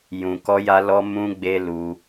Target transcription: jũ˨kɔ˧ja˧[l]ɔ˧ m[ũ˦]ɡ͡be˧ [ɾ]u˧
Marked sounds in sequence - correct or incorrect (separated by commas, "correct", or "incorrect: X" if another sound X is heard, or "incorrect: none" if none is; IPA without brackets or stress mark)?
correct, incorrect: ũ˧, incorrect: l